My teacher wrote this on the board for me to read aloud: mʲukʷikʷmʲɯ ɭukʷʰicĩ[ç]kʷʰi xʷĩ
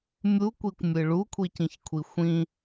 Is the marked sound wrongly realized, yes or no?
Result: no